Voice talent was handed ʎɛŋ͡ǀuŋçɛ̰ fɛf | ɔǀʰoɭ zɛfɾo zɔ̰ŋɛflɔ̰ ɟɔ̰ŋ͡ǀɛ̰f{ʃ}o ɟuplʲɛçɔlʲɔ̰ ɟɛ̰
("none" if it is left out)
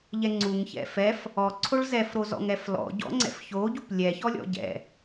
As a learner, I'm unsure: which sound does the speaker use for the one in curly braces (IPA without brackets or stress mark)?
ç